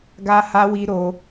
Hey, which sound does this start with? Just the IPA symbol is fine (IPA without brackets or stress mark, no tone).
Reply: ɡ